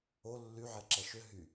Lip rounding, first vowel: rounded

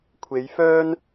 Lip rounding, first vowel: unrounded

